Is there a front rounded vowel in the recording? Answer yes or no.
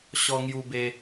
no